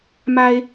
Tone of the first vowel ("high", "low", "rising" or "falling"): high